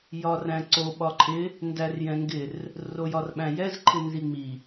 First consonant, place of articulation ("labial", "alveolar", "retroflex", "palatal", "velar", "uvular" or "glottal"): palatal